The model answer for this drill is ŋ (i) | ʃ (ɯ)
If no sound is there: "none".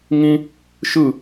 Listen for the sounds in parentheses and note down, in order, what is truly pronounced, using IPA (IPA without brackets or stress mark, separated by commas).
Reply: ĩ, ɯ